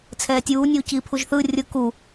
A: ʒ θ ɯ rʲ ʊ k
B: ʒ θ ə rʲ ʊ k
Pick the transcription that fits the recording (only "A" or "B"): A